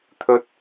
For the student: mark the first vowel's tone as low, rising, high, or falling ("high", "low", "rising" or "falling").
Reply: high